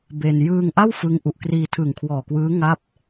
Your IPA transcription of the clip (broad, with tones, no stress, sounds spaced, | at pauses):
b e˧ n j ɯː˧ ŋ ʔ a˥˩ w f ɯ˦˥ ŋ ʔ u˨˩ ʔ k r iː˧ tʰ ɯ˨˩ ŋ kʰ w ɔː˨˩ k w ɯː˦˥ ŋ a˥˩ p̚